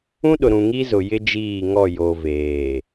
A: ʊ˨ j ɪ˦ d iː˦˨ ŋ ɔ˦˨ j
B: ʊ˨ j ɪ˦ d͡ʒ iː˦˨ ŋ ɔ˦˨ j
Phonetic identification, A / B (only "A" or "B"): B